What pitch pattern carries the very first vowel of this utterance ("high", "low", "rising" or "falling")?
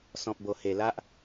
low